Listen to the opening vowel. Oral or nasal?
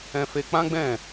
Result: nasal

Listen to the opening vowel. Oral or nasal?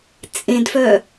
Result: nasal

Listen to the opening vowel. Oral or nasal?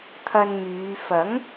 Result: oral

